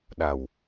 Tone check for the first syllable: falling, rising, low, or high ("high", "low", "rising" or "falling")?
low